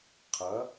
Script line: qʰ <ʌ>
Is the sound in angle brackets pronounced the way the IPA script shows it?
yes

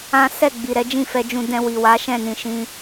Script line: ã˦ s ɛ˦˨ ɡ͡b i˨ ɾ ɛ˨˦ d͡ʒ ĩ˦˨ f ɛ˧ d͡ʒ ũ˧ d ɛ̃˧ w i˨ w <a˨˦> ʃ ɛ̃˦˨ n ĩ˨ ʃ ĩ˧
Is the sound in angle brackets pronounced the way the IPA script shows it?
yes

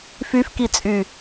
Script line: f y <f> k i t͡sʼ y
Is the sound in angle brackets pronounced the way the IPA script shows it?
yes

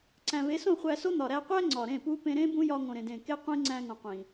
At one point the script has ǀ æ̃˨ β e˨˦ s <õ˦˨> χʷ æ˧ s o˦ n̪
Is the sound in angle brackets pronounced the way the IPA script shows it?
yes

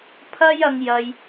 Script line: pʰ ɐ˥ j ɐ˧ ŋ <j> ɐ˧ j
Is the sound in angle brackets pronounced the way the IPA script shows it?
yes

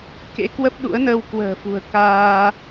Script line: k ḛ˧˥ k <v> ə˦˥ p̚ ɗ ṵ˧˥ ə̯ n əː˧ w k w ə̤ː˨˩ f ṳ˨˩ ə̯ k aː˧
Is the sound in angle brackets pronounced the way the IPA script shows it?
no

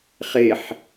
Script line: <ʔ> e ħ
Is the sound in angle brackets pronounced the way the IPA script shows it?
no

